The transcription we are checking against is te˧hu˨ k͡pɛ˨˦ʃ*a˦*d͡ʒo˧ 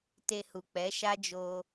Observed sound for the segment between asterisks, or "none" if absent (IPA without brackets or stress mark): a˦